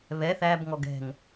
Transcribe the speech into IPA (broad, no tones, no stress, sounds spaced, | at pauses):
β ɛ θ æ b ŋ ɔ ɡ ɛ̤ ŋ